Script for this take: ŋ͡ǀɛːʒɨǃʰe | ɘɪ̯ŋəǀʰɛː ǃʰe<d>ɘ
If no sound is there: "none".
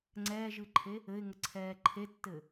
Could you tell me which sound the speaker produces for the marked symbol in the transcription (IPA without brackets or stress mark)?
tː